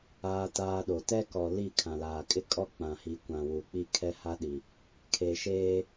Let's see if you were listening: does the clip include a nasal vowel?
yes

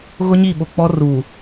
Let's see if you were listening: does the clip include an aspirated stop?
no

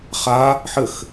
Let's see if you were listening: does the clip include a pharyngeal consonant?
yes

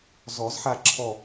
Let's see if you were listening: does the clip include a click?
yes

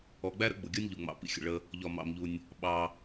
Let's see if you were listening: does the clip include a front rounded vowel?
no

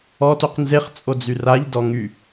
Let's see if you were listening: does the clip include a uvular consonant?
yes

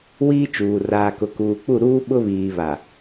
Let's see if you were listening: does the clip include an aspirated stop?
no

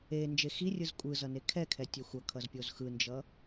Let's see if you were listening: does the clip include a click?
no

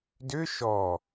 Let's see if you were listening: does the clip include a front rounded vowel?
yes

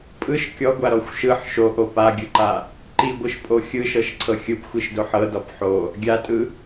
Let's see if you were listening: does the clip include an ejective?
yes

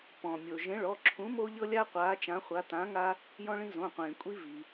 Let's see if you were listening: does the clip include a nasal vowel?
yes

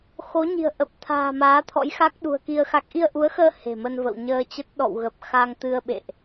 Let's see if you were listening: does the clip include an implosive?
yes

